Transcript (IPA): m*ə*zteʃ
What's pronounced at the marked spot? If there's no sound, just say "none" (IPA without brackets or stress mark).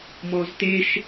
ɔ